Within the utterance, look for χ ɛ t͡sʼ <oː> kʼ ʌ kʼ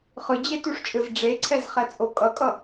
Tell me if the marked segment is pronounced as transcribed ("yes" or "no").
no